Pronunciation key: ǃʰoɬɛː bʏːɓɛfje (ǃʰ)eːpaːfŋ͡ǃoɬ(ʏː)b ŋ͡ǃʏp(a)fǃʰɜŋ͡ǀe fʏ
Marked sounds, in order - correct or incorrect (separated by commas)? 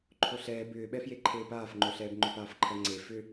correct, incorrect, incorrect